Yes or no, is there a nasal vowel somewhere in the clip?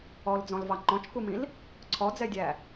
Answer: yes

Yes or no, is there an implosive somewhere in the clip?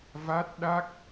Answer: yes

